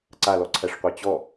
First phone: ǀ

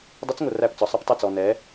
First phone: dˤ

